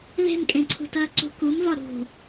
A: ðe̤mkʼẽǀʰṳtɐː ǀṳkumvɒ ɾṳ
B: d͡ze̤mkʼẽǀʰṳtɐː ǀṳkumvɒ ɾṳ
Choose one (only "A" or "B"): A